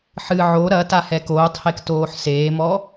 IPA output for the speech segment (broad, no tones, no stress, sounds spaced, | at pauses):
ħ ɨ ʕ o ɾ ɐ t a h ɛ k oː tˤ h e k t oː ħ s eː m ɔ